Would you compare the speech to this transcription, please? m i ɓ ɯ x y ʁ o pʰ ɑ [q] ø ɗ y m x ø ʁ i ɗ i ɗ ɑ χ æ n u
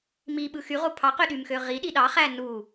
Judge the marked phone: correct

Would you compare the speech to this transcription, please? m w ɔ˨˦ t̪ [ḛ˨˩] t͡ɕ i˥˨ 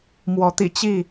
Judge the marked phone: incorrect: ḭ˨˩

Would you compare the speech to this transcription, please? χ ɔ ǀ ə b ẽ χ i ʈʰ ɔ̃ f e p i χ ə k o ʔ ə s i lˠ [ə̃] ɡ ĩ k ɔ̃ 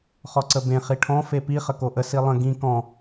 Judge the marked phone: correct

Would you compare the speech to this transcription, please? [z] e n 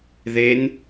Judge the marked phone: incorrect: ð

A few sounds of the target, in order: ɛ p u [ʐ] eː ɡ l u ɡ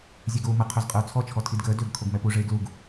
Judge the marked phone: correct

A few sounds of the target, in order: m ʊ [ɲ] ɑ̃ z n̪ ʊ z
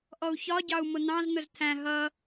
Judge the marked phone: incorrect: n̪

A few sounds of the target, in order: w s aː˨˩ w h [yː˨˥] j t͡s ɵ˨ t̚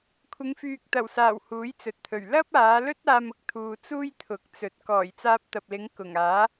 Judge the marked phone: incorrect: uː˨˥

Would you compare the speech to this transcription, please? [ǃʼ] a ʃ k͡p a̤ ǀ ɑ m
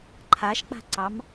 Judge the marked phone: incorrect: ǃʰ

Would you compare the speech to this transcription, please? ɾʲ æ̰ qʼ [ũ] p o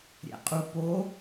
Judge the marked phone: incorrect: u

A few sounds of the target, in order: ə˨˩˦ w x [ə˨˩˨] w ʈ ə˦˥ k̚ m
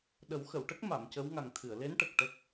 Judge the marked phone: correct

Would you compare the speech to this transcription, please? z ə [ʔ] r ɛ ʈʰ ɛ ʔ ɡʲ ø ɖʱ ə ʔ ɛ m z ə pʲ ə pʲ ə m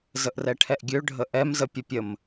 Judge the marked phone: correct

